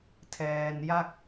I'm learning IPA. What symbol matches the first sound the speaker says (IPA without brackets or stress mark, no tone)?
tʰ